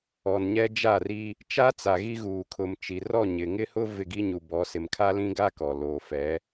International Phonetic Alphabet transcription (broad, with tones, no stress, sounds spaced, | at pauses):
ɔ˨ n ɲ ɛ˦ d͡ʒ a˦˨ r i˦ | t͡ʃ a˦ t͡s a˨ ɣ i˦ ɣ uː˨ kʰ ʊ˨ m t͡ʃ i˨ r ɔ˦˨ ɲ ɪ˨ ŋ ɪ˦ h ʊ˦ v ɪ˦˨ ɡ i˦ ɲ u˨ b ɔ˨˦ s ɪ˨ m kʰ a˦ l ĩ˦ ɡ a˦ k ɔ˨ l oː˨ f ɛ˨˦